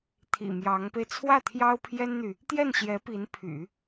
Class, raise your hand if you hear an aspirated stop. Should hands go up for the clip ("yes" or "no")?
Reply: yes